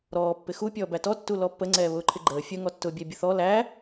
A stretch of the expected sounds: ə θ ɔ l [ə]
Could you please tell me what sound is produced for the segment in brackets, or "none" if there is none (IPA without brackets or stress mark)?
æ